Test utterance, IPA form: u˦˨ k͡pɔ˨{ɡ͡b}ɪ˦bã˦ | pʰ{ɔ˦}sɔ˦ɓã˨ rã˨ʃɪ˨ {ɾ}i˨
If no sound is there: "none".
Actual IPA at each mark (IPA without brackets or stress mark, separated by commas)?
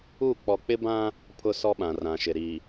k͡p, ʊ˦, ɾ